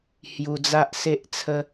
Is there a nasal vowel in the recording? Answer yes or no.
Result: no